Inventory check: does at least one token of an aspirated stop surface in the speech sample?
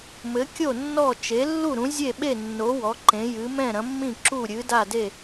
no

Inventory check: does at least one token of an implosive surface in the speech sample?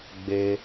no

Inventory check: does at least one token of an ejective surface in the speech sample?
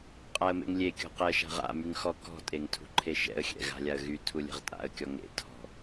yes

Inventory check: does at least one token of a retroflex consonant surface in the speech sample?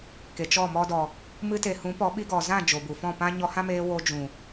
no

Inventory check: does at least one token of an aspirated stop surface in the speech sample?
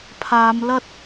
yes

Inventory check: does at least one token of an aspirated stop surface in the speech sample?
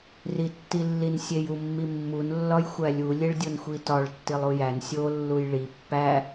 no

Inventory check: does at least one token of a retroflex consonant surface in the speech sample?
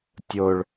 yes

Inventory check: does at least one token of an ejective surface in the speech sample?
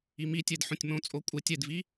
yes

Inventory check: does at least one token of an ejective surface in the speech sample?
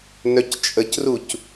yes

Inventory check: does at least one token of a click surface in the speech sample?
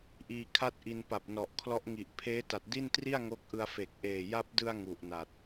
no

